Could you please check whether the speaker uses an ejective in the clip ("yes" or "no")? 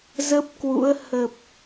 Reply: no